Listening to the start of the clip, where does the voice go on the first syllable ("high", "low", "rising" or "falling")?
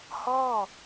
falling